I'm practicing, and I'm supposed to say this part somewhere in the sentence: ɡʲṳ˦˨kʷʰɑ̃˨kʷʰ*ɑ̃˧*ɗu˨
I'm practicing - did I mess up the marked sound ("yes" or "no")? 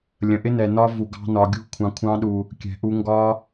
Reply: no